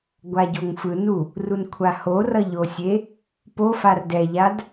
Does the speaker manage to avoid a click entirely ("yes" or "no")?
yes